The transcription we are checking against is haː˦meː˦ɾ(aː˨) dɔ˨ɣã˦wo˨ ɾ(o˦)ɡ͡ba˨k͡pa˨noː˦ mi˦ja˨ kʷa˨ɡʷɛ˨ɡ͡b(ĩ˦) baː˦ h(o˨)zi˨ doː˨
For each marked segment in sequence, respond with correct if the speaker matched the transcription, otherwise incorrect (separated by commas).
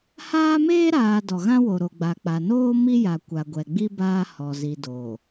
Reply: correct, incorrect, incorrect, incorrect